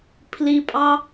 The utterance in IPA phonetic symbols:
pʰ l i pʼ ɑ

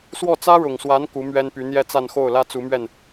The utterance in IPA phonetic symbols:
s w ɔ˥˩ t͡s ä˥ ɻ ʊ˨˩ ŋ s w a˧˥ n k u˧˥ m ɥ ɛ˥ n p y˧˥ n̪ j ɛ˥˧ t͡s a˥˧ n x o˥˩ ʊ̯ l ä˥ t͡s u˧˥ m ɥ ɛ˥˩ n

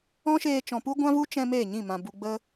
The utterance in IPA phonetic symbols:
ɔ̃˦ ʃ eː˧ t͡ʃ ɔ̃˨ p u˦ ɡʷ ã˦ v u˦ t͡ʃ ɛ̃˧ m eː˦˨ ɲ ĩ˦˨ m ã˨ b u˨ ɡ͡b ə˦

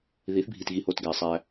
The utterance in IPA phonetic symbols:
ð i˨˦ θ bʱ i˨ t ɣ i˨ h o˨ t ɡ æ˨ sˤ æ˦

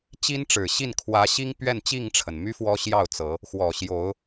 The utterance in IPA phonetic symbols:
t͡ɕ i˦ n ʈ͡ʂ ɻ̩˨˩ ɕ i˥˨ n kʰ w ä˨˦ ɕ i˦ ŋ p ɥ ɛ˥˨ n t͡ɕ i˥˨ ŋ ʈ͡ʂʰ ə˩ n m y˦ f w ɔ˦ ɕ j ɑ˥˨ ʊ̯ t͡s ɤ˨˦ | x w ɔ˨˩ ɕ j o˨˦ ʊ̯

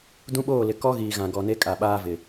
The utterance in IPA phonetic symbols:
d ũ˦ ɓ oː˦˨ l ɪ˨ k ɔ˦ ɣ iː˨ ɣ ã˨ ɡ ɔ˨ n e˦ kʼ a˨ ɓ aː˦ v ɪ˨

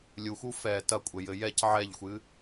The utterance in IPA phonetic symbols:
lʲ u x u f ɛ t ɐ kʷʼ ɘ j ɘ j ɛ c ʕ ɛ ʎ xʷ ɨ

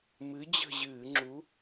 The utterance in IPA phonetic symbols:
m ɨ˨˥ d͡ʑ ə̤˦˨ ʑ ɨː˧˩˧ ŋ͡ǁ u˨˥

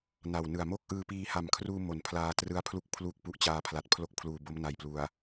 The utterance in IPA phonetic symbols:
n a˨˩ w n ɯ˨˩ a̯ m o˥˩ k̚ ʔ ɯː˧ p iː˧ h a˨˩ m kʰ r uː˧ m o˨˩ n pʰ l aː˧ t r ɯ˦˥ a̯ pʰ l u˦˥ k̚ pʰ l u˨˩ k̚ p u˦˥ ʔ t͡ɕ aː˧ pʰ l a˨˩ t̚ pʰ l o˥˩ k̚ pʰ l uː˨˩ b o˦˥ m n a˨˩ j p l u˨˩ a̯

